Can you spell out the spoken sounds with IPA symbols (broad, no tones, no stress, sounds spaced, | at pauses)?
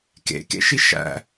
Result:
k ḛ k ḛ ʃ i ʃ æ̰